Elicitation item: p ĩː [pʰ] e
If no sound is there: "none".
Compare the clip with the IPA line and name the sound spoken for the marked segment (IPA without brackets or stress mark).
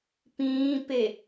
p